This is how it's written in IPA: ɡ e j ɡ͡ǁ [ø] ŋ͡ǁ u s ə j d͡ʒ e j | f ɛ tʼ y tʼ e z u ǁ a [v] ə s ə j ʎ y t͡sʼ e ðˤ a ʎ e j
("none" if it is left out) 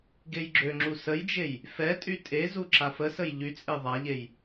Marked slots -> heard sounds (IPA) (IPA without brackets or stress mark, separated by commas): ø, f